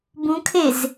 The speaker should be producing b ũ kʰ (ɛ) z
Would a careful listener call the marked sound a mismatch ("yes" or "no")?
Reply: yes